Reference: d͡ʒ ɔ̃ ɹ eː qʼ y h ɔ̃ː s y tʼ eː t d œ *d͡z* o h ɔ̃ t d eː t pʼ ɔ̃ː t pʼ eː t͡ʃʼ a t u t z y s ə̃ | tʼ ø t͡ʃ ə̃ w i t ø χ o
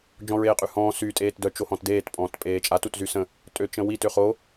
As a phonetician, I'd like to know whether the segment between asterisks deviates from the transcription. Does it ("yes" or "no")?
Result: yes